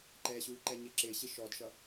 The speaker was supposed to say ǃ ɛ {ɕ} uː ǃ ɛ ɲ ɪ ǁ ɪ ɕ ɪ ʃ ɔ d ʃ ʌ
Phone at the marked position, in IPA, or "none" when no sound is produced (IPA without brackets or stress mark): ɕ